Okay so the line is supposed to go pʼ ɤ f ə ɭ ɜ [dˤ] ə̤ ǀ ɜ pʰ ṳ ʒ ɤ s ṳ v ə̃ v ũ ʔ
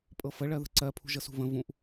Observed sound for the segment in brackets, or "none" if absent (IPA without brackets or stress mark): ð